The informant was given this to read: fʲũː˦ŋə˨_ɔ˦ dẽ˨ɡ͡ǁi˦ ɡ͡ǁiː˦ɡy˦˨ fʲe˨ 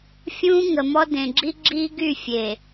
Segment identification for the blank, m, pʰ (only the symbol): m